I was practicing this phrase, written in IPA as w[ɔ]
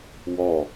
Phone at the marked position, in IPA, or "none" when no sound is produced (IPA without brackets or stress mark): ɔ